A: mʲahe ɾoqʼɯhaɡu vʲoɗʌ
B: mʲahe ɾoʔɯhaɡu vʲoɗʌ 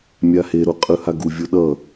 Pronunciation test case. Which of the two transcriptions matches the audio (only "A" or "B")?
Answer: A